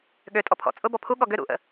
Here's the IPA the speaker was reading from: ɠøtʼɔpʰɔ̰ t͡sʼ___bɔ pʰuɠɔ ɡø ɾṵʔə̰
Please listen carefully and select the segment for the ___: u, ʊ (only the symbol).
ʊ